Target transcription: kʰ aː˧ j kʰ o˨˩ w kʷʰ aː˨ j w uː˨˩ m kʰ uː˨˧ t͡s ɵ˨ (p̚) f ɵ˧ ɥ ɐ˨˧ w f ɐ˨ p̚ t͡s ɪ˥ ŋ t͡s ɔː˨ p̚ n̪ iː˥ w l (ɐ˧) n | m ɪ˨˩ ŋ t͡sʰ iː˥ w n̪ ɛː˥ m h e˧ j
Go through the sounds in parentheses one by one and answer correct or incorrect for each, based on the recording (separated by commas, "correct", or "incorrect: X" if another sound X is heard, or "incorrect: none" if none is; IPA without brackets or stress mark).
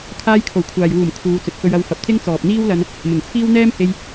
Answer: incorrect: t̚, correct